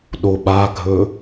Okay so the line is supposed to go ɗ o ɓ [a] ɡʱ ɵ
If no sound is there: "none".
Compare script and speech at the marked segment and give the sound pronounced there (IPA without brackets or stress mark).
a